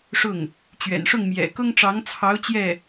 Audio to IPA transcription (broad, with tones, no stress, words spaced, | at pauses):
ʂʊ˥˩ŋ | t͡ɕɥɛ̰˨˩nʂʊ˥˩ŋ mjɛ̰˨˩ kʊ˥ŋʈ͡ʂɑ˧˥ŋt͡sʰɑ˧˥ʊ̯ t͡ɕjɛ˥˩